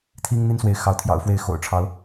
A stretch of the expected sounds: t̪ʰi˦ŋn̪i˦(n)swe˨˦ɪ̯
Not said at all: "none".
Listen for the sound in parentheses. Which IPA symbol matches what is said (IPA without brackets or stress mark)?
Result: n